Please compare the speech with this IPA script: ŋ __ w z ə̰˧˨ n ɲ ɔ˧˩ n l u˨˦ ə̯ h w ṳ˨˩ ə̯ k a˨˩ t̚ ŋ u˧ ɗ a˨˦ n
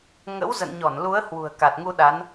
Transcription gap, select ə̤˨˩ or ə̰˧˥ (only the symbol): ə̰˧˥